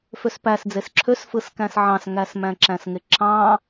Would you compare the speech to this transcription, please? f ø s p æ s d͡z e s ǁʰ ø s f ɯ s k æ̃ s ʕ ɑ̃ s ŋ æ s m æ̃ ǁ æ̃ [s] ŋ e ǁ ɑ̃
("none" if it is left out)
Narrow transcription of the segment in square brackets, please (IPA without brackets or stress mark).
s